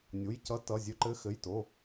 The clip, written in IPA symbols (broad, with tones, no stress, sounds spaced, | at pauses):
nʲ u˩˧˩ j c ʌ˧˥ t ʌ˩˧˩ zʲ ø˧ ǃ ɘ˧˥ x ɘ˩˧˩ j t o˩˧˩